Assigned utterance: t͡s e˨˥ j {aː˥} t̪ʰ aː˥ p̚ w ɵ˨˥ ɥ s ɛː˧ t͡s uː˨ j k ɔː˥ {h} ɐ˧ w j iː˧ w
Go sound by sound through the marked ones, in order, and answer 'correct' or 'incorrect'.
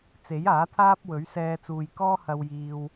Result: incorrect, correct

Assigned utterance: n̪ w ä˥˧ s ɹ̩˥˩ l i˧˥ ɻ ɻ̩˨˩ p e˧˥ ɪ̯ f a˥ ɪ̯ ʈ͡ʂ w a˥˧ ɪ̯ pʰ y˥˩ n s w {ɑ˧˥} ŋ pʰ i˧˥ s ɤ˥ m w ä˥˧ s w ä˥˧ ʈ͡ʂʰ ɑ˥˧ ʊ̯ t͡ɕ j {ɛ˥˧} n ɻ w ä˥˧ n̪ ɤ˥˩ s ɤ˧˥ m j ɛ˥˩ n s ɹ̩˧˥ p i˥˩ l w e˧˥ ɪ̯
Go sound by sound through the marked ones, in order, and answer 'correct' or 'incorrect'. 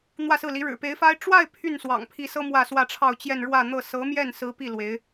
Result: incorrect, correct

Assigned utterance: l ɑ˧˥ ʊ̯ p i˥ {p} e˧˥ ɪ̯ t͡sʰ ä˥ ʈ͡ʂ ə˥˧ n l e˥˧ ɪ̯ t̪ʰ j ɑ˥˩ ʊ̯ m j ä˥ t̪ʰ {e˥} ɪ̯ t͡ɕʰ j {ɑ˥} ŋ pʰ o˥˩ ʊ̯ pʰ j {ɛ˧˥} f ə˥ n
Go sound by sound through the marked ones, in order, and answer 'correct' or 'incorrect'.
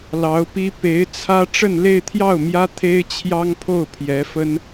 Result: correct, correct, correct, correct

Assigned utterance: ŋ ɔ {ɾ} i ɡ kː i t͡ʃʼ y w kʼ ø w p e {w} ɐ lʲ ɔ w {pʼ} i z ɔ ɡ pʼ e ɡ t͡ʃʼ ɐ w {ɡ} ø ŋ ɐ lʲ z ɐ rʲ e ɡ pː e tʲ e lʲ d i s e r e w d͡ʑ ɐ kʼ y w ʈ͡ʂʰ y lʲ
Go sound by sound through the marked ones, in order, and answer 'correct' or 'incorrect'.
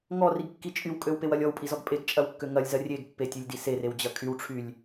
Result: incorrect, correct, correct, incorrect

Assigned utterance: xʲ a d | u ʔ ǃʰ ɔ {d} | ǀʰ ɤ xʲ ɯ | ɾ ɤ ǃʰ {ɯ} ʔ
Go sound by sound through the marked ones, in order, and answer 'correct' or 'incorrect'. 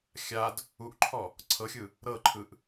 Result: incorrect, correct

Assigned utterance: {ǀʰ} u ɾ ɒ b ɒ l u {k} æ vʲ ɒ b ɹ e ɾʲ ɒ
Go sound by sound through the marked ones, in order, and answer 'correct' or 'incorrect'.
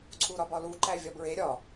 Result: correct, incorrect

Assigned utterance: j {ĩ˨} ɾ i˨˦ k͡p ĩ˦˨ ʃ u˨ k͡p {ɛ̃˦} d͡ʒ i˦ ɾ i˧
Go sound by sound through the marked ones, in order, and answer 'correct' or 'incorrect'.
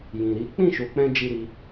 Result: correct, incorrect

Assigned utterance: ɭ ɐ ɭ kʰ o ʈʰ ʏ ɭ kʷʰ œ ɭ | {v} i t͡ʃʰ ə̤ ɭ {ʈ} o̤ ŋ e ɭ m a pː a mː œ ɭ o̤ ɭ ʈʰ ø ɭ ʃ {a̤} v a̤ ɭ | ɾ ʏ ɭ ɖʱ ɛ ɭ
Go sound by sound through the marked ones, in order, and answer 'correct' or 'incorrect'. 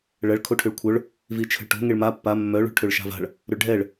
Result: correct, correct, correct

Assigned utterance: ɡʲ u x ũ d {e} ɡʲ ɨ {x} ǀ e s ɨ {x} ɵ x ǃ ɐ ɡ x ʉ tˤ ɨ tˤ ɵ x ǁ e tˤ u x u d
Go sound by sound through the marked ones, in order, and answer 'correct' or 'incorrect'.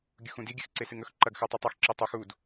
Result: incorrect, correct, incorrect

